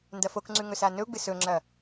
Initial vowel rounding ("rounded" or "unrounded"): unrounded